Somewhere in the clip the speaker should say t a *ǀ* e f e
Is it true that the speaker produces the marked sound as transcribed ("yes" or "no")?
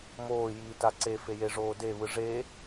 yes